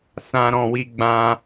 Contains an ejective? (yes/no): no